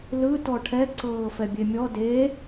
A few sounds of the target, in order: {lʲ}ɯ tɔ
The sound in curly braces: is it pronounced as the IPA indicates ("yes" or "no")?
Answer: no